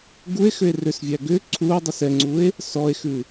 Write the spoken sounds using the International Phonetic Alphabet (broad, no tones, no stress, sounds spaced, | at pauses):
ɡ u e̯ x ʏ e̯ r ʏ s vʲ æ ɡ ʏ ǀʰ u o̯ dˤ ə s ɛ ŋ͡ǀ u e̯ | s ɔ e̯ x ʉ